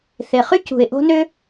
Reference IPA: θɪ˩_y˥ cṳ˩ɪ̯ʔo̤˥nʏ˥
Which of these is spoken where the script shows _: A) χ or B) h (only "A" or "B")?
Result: A